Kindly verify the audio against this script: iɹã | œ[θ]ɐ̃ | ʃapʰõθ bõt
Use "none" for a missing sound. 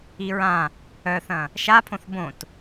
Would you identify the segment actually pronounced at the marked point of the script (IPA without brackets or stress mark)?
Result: θ